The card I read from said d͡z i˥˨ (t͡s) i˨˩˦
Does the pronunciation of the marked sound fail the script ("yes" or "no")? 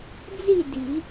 yes